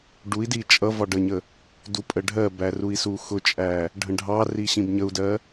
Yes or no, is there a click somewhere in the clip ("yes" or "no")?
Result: no